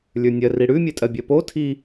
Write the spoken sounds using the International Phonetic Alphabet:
lʲ ə˞ nʲ ɜ r i ɽ ʉ mʲ ɛ tʼ ɜ bʲ ɜ p o tʰ i

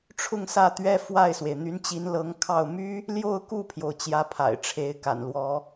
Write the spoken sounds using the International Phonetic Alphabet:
ʈ͡ʂʰ ʊ˥˧ ŋ s ä˥˩ t̪ ɥ ɛ˥ f w a˥˩ ɪ̯ s w e˩ ɪ̯ n̪ y˧˥ n t͡ɕ i˧˥ n l ɤ˧˥ ŋ kʰ ɑ˥˩ ʊ̯ m y˥ | l j o˥˧ ʊ̯ k u˥˩ pʰ j o˩ ʊ̯ t͡ɕ j ä˧˥ pʰ a̰˨˩ ɪ̯ ʈ͡ʂʰ e˧˥ ɪ̯ k a̰˨˩ n l w ɔ˧˥

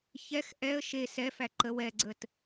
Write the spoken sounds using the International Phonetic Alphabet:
ç ɛ x ʔ ɛ ə̯ ʃ e s ɛ f æ ǃ ə w ɛ ɡ͡ǀ ə t

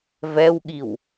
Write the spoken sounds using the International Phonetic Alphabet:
v ɛ w ɠ i w

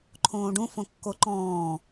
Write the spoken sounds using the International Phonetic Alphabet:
ǃʰ õː ɖ ũ f õ kː o ǃ ɔ̃ː

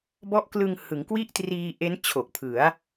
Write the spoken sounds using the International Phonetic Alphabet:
b ɔ˦˥ ʔ k l ɯ˧ ŋ h ɯ˩˦ ŋ k w i˥˩ ʔ t r iː˧ ʔ e˦˥ n t͡ɕʰ o˨˩ k̚ pʰ ɯ˩˦ a̯

